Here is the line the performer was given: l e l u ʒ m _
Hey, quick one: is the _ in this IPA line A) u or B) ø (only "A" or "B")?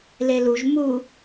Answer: A